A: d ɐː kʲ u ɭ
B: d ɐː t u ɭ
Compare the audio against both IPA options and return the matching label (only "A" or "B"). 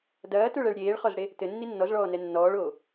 B